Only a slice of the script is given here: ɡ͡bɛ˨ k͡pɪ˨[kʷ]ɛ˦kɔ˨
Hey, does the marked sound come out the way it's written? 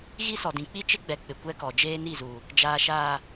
yes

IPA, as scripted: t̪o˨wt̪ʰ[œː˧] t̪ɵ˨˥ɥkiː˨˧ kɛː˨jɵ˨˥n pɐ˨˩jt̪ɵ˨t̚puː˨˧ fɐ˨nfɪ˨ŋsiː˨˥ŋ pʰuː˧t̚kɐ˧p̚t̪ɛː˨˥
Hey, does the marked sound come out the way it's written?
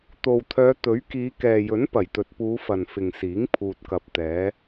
no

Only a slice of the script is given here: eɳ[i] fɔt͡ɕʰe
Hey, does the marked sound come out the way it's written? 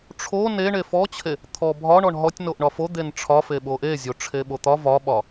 no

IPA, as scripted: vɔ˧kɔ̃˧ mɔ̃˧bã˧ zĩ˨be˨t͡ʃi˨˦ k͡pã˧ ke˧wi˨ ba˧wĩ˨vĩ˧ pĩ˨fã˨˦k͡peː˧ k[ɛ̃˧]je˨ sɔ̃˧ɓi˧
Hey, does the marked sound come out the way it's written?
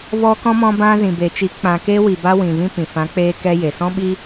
no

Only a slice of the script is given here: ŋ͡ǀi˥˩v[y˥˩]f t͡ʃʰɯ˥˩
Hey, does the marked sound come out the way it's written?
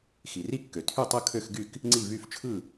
yes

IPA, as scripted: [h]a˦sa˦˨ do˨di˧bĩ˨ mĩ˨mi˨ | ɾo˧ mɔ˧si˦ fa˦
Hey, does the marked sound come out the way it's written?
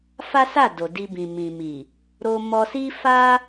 no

